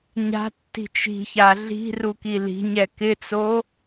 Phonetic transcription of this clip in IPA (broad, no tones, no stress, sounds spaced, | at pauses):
ɲ a̤ tː i̤ t͡ʃ i̤ ç a ɮ i̤ r u k i l i̤ ɲ ɛ k ɪ t͡s o